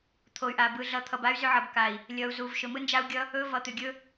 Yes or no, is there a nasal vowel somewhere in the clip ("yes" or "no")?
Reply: no